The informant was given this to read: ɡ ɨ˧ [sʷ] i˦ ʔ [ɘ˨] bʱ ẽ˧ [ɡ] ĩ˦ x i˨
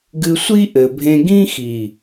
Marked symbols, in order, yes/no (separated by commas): yes, yes, yes